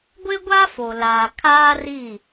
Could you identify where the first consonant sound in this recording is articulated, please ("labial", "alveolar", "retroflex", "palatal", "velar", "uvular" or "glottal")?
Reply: velar